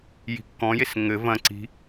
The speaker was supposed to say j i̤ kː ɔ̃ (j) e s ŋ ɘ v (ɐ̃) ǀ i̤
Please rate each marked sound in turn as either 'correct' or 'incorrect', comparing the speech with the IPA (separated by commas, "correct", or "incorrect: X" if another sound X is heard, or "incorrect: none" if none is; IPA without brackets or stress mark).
correct, correct